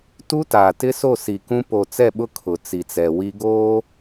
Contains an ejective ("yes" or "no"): no